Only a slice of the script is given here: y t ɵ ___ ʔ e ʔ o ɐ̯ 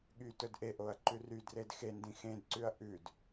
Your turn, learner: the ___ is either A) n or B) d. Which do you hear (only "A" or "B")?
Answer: B